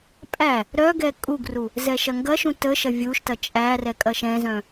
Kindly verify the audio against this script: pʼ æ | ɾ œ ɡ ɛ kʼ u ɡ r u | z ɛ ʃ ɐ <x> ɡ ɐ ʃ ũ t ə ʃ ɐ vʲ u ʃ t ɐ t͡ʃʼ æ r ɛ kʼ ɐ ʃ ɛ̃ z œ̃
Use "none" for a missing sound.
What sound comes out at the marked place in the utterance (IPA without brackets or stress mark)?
ŋ